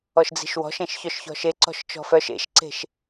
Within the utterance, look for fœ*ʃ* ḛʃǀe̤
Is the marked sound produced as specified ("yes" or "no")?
yes